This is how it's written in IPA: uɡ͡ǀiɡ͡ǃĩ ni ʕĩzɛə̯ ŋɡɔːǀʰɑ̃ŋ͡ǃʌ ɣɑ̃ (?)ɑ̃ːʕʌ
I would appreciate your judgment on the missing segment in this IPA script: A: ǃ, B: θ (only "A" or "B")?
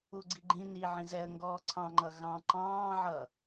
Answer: A